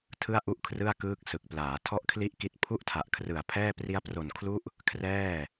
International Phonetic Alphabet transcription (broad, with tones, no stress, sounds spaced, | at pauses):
tʰ ɯ˥˩ a̯ ʔ u˥˩ ʔ kʰ r ɯ˥˩ a̯ k ɯː˦˥ k̚ s ɯ˨˩ k̚ p l aː˩˦ tʰ ɔ˥˩ ʔ kʰ l i˥˩ ʔ k i˦˥ t̚ pʰ u˥˩ ʔ tʰ a˨˩ ʔ kʰ r ɯ˨˩ a̯ pʰ ɛː˥˩ p r i˦˥ a̯ p r o˨˩ n kʰ l u˦˥ ʔ | kʰ r ɛː˥˩